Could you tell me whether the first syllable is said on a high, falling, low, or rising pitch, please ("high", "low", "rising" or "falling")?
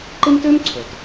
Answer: high